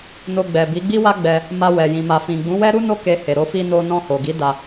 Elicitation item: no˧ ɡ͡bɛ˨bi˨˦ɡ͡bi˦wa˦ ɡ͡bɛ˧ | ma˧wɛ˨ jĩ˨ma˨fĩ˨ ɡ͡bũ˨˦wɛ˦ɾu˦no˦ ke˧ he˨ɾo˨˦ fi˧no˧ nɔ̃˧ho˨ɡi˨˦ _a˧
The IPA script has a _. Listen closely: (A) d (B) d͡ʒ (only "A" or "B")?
A